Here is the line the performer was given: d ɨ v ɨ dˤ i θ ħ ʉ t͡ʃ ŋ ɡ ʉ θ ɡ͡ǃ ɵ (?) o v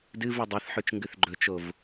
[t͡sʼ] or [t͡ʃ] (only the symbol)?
t͡ʃ